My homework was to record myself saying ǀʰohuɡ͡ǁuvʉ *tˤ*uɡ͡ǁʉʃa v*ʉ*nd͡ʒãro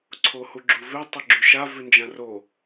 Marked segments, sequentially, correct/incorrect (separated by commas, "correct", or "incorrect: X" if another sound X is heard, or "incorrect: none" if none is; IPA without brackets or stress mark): correct, correct